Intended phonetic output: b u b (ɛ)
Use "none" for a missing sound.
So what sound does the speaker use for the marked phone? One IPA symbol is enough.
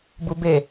e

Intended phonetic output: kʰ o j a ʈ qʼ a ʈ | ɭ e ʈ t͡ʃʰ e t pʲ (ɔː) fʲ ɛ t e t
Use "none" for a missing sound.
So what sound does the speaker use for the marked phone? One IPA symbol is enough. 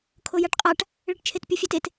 ɔ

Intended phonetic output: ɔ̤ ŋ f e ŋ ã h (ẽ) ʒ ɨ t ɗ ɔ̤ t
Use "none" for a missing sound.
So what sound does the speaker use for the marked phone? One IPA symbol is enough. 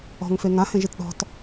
ẽ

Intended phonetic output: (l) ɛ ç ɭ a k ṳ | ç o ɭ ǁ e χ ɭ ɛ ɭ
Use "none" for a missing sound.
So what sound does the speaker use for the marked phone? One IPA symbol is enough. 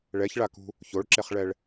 ɭ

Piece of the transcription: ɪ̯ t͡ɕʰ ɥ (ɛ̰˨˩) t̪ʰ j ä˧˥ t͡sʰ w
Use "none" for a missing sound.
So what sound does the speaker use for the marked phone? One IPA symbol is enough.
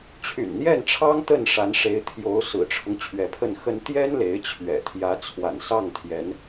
ɛ̰˨˩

